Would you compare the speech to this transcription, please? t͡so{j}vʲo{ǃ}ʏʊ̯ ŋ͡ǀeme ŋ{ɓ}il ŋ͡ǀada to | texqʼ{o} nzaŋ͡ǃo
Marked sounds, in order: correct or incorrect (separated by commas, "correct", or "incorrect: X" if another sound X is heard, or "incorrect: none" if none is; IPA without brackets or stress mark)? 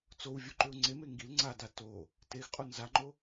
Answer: incorrect: w, correct, incorrect: ɡ, correct